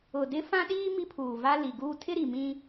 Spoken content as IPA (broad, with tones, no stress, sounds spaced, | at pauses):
ʊ˨ d ɪ˦ f ã˦ ɗ iː˦ m i˦ pʰ uː˨ v a˦ l i˨ ɡ uː˦ tʰ ɪ˦ ɾ i˨ m ĩ˦